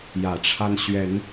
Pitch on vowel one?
low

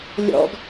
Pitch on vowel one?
high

